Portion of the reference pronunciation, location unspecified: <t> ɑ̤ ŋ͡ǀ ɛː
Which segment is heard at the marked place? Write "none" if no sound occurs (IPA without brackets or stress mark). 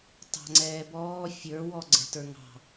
t